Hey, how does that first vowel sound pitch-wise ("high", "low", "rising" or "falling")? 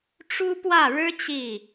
high